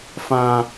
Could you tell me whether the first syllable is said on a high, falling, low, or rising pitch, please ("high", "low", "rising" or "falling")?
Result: high